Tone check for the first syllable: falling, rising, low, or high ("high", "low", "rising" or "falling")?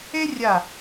high